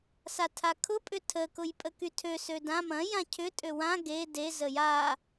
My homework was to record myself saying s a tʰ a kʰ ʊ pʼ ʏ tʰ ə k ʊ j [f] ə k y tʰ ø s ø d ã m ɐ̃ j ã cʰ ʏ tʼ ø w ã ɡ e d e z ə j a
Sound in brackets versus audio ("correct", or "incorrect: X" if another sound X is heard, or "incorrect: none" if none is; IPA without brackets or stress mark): incorrect: pʼ